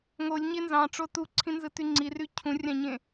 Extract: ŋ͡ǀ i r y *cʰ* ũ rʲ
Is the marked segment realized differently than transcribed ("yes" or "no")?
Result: no